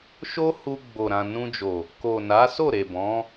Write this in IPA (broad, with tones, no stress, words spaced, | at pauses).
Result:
ʃo˦hu˧ ɡ͡bo˨ ɾã˨nũ˧d͡ʒo˨ | ko˨na˨˦ so˦˨ɾe˨ bɔ̃˨˦